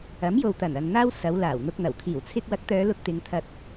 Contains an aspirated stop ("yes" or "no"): yes